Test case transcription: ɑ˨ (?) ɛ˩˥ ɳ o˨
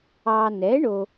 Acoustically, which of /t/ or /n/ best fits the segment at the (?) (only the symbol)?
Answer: n